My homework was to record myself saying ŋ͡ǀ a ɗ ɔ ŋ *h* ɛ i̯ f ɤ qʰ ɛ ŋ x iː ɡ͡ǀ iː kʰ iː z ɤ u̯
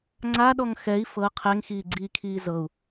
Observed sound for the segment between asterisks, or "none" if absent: x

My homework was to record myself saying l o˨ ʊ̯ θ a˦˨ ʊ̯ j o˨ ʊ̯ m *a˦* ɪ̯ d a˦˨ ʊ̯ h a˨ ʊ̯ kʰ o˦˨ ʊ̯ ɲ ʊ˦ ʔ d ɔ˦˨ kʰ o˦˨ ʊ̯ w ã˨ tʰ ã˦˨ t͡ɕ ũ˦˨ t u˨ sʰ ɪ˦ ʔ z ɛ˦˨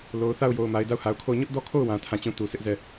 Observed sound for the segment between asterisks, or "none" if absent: a˨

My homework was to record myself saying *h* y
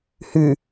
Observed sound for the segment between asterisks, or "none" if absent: h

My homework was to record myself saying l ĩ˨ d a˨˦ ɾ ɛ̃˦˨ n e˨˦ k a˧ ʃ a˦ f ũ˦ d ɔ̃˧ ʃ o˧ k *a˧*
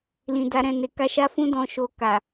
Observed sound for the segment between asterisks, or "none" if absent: a˨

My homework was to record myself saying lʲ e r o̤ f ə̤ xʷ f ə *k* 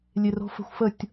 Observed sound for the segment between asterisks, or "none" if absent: tʲ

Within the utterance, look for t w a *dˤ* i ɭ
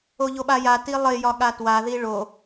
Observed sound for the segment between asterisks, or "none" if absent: ð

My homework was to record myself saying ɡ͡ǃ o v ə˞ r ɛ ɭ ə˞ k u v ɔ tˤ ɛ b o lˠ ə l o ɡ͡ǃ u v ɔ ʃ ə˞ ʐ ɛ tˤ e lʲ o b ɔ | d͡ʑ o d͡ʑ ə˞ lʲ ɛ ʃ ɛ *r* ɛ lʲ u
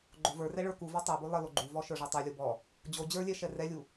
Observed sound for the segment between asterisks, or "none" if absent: r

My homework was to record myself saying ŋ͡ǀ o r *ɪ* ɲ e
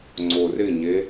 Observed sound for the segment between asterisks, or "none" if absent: ɪ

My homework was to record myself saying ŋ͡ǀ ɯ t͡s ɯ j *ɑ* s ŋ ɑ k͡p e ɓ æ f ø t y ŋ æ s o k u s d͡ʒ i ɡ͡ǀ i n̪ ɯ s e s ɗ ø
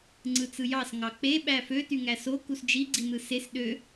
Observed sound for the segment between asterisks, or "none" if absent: ɑ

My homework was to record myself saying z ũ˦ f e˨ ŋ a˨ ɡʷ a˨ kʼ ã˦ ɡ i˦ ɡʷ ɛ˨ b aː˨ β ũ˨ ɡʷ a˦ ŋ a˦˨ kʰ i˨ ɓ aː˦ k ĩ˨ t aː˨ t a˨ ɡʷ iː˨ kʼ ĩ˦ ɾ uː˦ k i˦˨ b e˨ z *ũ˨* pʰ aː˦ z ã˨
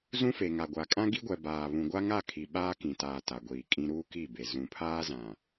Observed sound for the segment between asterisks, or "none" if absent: ũ˨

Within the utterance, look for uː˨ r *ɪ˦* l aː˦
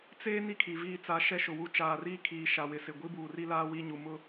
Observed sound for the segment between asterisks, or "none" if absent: i˦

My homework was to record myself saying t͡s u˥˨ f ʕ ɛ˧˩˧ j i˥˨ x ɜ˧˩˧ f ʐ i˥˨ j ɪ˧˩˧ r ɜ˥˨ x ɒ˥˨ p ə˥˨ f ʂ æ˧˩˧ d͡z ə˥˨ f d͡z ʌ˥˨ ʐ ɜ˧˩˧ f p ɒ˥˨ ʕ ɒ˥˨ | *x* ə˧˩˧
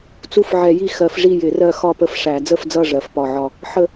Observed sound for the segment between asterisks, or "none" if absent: ħ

